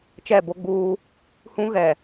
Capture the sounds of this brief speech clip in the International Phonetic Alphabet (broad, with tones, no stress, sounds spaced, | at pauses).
t͡ʃ ɛ˦˨ b o˦ ɡ͡b uː˦ | h ũ˦ ɣ ɛ˨